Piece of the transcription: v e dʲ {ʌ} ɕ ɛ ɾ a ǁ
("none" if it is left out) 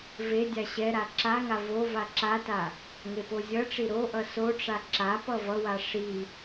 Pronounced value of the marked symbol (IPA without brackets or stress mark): a